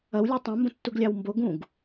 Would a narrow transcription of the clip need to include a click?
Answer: no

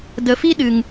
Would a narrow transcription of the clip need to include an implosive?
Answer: yes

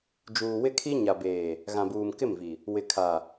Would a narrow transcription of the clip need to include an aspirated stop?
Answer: yes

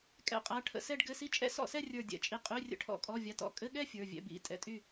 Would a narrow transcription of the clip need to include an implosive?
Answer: yes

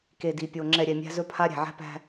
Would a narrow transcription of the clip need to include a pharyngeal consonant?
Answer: yes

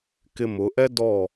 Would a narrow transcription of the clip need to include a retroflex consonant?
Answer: no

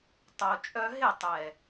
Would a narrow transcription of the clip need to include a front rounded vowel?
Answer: yes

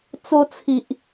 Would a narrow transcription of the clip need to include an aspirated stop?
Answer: yes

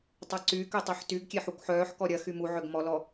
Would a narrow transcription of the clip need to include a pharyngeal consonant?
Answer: yes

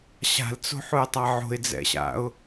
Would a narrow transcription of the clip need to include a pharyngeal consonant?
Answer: yes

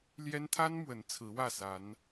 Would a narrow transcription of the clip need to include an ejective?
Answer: no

